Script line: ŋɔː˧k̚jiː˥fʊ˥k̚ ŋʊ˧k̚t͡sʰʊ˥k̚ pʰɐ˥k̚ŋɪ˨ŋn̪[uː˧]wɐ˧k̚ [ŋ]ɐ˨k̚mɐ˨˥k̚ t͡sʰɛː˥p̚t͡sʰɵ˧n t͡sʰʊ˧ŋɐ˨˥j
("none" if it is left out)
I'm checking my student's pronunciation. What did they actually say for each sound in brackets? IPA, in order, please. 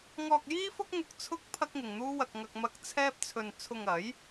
uː˥, ŋ

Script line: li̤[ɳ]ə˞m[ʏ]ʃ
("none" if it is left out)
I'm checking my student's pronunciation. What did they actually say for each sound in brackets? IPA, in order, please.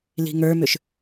ŋ, ʏ

